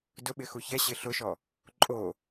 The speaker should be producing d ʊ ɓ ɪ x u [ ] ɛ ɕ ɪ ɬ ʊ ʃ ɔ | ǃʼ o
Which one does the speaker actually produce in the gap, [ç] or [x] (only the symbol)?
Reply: ç